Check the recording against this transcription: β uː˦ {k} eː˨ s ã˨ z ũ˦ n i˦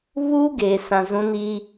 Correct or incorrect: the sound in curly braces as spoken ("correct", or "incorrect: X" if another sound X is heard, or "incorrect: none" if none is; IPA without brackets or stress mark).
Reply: incorrect: ɡ